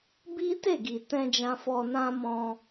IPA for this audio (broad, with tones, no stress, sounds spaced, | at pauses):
b i˦ t e˦˨ ɡ i˨ t ɛ̃˧ d͡ʒ ã˧ f ɔ˧ n ã˦ m ɔ̃˧